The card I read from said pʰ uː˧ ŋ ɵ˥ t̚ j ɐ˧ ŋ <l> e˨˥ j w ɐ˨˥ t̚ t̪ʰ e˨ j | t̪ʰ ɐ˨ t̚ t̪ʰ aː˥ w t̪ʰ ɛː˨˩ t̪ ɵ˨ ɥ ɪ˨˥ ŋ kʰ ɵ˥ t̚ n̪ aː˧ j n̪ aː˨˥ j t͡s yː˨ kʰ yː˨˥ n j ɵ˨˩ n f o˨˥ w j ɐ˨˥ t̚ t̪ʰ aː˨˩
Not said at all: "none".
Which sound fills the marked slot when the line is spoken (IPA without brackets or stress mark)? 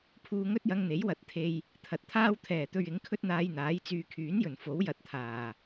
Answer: n̪